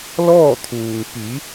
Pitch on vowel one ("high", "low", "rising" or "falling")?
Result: falling